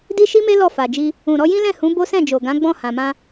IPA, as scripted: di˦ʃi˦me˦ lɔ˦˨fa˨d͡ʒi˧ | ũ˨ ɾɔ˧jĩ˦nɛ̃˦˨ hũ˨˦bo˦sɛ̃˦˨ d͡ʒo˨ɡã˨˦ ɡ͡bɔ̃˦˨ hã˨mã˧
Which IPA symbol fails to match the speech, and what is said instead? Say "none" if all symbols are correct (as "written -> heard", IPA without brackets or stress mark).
n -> l